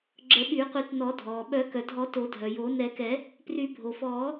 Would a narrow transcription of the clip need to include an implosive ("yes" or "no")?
yes